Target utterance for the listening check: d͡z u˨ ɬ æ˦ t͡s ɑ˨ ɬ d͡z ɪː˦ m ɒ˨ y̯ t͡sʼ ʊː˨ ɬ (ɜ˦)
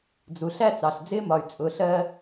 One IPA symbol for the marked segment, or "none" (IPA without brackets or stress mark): ɜ˦